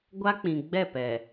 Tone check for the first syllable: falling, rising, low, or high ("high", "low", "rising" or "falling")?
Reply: high